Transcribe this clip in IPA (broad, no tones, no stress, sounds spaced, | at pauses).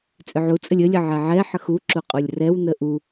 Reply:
t͡sʼ ʏ ʕ u t͡sʼ ə lʲ ə lʲ ə ʕ ɛ ʕ ɛ ħ ə x u ǁ u qʼ u lʲ r ɛ w n ə ʔ u